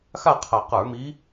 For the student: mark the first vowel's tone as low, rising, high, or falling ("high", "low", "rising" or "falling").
falling